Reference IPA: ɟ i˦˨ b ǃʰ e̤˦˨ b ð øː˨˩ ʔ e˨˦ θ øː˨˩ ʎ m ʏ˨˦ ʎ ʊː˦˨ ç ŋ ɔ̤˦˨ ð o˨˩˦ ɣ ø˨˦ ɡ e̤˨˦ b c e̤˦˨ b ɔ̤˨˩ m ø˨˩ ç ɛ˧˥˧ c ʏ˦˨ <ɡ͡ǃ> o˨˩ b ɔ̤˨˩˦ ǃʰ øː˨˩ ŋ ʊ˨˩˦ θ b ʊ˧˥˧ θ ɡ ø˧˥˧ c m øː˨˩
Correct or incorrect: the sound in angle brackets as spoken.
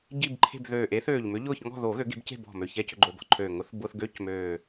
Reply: correct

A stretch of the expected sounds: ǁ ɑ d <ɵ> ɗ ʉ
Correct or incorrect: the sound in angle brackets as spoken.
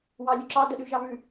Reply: incorrect: ə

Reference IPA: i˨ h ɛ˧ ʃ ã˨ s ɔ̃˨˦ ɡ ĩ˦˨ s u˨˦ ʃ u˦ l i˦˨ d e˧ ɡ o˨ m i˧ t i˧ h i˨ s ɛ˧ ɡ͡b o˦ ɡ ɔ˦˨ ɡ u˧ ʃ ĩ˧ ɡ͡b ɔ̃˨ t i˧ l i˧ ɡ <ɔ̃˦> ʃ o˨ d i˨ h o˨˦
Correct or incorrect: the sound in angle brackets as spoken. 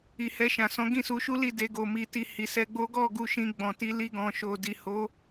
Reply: incorrect: ɔ̃˨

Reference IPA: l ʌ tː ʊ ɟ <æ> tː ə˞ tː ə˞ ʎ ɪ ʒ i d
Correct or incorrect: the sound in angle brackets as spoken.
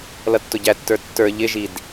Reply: correct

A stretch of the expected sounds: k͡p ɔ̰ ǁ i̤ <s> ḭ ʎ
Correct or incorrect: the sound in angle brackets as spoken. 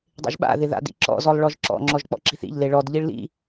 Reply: incorrect: θ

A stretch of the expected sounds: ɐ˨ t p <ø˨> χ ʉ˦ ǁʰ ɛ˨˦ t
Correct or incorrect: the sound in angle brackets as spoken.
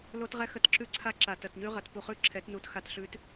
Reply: incorrect: u˨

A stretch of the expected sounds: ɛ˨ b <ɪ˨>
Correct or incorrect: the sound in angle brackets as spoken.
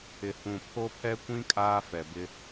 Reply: incorrect: ɪ˦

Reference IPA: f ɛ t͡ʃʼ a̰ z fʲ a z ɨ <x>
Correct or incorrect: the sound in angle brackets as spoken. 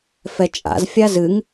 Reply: incorrect: ŋ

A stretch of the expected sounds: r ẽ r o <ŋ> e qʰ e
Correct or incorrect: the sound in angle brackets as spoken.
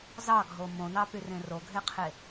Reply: incorrect: ɡʱ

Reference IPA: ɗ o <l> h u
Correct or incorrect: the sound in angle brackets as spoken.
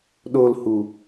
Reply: correct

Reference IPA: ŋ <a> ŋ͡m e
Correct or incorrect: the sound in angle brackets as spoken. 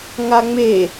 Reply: correct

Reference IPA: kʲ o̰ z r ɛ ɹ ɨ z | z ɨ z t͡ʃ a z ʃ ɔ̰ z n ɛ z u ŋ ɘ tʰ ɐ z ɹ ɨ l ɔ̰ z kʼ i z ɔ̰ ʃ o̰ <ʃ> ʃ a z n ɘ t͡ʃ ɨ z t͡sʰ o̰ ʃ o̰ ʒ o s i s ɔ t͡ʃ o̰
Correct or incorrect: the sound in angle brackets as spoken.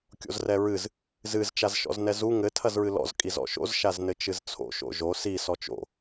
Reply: incorrect: z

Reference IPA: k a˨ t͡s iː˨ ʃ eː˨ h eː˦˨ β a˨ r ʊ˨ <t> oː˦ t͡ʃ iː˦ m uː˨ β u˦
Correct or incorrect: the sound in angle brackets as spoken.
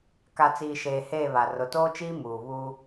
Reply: correct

